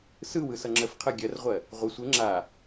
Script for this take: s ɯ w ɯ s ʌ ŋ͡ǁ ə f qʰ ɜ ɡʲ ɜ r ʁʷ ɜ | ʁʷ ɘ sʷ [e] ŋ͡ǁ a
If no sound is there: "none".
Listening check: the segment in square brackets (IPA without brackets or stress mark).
ɘ